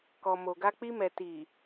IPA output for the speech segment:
kɔ˨mo˨ɡa˧ k͡pi˧mɛ˨ ti˨

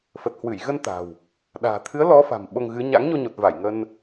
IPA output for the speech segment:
fə˨˩t̚hwɨ˧˩j ɣə˧n t̪a̤˨˩w | ɗa̤ː˨˩ t̪ʰɨ˨˦ə̯ lɔ˨˦ fa̤˨˩mɓo˧ŋɣɨ˨˦ ɲa̰˧˥ŋɲo˧ɲo˨˩t̚va˧˩j ŋə˧n

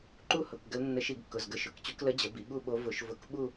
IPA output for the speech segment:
ǃu˥˧hʊ˩˧˩k ɡə˧˥l nːə˧˩˧ʃi˧˩˧ɡ kːʊ˩˧˩zɡə˧˩˧ʃʊ˩˧˩kt͡ɕu˧˥k lə˧˥d͡ʑə˩˧ bi˩˧ɠu˥˧ɓo˧˥ vʊ˧˩˧ʃvʊ˧˩˧kɓu˥˧

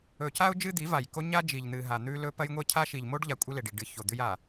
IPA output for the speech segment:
ɵ˨ca˦ʊ̯ d͡ʒɨ˦d̪i˨˦va˨jko˦ ɲa˦d͡ʒi˨ʎn̪ɨ˨ ɦa˨n̪ʉ˦lɵ˦ pɐ˦jŋʷe˦cʰa˦ ʃi˨ʎ mo˦ɖʎa˨ kʷʼɨ˦le˨ɖi˨ ɖɨ˨˦ço˨d̪ʉ˦j a˨

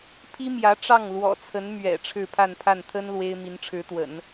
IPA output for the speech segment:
pʰi˥mjä˧˥ ʈ͡ʂɑ˥˩ŋlwɔ̰˨˩t͡sʰə˧˥n mɥɛ̰˨˩ ʈ͡ʂʰɻ̩˥˧pʰa˥˧npʰa˥˩n t̪ʰə˥n lwe˥ɪ̯ mi˧˥nʈ͡ʂʰɻ̩˧˥t̪wə̰˨˩˦n

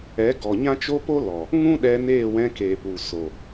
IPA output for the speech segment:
ɛ˨˦ɡɔ˨ɲã˦ t͡ʃo˦po˦lɔ˨ | ŋũ˦ɗɛ˧ neː˦˨wɛ̃˧ keː˨pu˨so˨

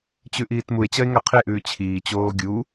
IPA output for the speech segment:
t͡ɕʉʔiːtmue̯ t͡ɕɐe̯ŋɐqʰeʔʉː t͡ɕʰiː t͡ɕoːɡʲu

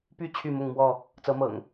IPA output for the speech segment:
py˥˨ t͡ɕʰy˥˨mʊ˥˨ŋmwɔ˥˨ | t͡sɤ˨˦mɤ̰˨˩ŋ

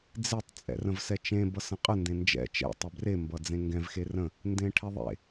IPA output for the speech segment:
d͡zetˤ t͡sʼɛ̰rə̃vsɛt͡ʃẽ bʌsə̃qʼə ndẽnd͡ʒɛ̰ t͡ʃɛ̰ tˤɛbre mbʌd͡zẽŋɡɛ̃v xerə̃ | ndẽʈʰɛðˤḛ

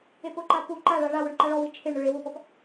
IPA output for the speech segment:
epʊǃa pu ǃaɭa ɭawʊɳ ǃaɭɔwi t͡ʃʰeɳɾʊ ɭe wʊpɔp

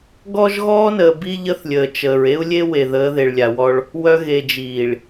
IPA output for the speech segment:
ɡɔ˦ʒɣɔː˦nəː˨ bi˦ʎə˦θlʲəː˨ t͡ʃəː˨ɹ e˦u̯lʲe˦we˨ ðəː˨˦ðe˨ɭlʲa˨wɔ˦ɭ | wœ˨ ɣe˨d͡ʒiː˨ɭ

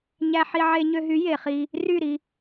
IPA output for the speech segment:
ɲæ˧ħi˧ ʕe˧ɲø˧ɦy˨˦ je˨χi˧ | ry˦˨ɾi˧

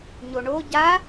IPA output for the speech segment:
ɲoɳo ɟa

